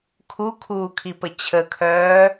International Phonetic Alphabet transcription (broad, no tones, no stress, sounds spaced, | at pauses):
kʰ u kʰ uː kʰ i p ə t͡ɕʰ ə kʰ œː